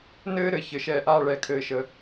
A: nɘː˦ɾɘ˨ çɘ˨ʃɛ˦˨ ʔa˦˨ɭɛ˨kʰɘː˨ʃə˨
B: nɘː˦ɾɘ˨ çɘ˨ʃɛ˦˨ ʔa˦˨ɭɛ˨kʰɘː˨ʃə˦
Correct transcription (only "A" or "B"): A